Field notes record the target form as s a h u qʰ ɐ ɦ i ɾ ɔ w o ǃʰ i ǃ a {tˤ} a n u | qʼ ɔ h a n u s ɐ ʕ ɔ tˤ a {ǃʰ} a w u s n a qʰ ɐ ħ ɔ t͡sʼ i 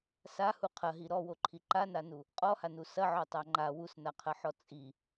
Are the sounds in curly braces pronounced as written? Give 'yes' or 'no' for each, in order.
no, no

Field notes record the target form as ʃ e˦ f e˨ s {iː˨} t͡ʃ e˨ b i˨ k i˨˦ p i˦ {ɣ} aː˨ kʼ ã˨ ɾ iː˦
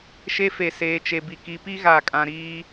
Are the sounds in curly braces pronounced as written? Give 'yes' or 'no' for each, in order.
no, yes

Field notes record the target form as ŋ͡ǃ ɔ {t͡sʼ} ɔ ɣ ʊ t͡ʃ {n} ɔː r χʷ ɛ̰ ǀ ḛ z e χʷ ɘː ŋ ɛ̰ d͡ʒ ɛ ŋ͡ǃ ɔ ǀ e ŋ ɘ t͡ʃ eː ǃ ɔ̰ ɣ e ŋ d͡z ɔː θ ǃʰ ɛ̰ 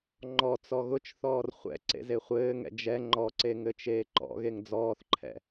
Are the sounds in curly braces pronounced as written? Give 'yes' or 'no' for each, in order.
no, no

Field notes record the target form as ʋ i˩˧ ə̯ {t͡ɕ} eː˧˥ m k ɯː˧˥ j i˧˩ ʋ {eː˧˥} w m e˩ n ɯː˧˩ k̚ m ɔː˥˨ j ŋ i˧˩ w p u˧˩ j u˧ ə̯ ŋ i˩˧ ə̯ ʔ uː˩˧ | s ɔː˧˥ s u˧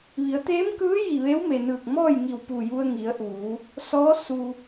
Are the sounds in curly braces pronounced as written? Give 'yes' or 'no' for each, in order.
no, yes

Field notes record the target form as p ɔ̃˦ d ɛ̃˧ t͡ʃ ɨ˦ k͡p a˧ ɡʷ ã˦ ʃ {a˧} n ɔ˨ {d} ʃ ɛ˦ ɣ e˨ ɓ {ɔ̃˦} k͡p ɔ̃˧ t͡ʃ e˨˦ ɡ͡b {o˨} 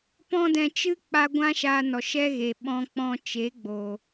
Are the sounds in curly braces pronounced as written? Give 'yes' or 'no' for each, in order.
no, no, no, yes

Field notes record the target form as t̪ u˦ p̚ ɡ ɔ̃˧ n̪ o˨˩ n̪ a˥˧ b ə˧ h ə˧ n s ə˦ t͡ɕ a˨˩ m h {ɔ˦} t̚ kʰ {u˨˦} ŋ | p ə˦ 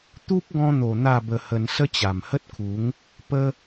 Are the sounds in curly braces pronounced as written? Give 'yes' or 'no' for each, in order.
no, yes

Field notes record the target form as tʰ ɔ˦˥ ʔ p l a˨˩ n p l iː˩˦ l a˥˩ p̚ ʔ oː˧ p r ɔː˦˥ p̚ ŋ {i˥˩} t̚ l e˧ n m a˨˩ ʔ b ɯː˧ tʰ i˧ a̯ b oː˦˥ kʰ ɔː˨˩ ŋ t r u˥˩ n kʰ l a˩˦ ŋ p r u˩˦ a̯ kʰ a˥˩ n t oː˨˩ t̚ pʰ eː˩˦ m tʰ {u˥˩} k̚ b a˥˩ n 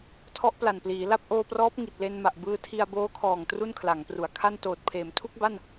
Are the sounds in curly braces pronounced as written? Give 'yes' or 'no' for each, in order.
no, yes

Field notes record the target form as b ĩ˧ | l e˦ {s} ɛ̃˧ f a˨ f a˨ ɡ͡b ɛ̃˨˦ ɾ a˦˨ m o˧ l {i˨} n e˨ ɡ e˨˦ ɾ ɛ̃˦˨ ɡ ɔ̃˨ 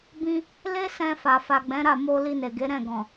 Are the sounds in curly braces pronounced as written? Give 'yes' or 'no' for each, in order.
yes, no

